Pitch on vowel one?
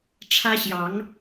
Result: high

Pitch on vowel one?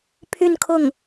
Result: falling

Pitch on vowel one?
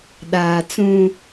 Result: low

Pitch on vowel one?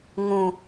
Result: low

